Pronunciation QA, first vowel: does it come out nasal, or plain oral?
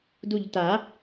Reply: oral